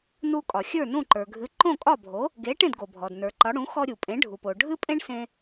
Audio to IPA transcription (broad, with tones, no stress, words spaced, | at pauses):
nu˧ kʼɒ˩xʲə˞˥˩nũ˥˩ ǃə˞˩ɡʱɨ˩˥ ǃõ˥˩kʼɒ˥˩bʱo˩˥ | ɡe˩˥ ʈẽ˥˩dɡo˩bʱɔ˩d nə˞˩ǃɒ˩˥ ɽũ˩˥xɔ˧ɾʲu˩pʼẽ˩˥ ɖʱu˩po˩ ɖʱɨ˥pʼẽ˥ɳsẽ˧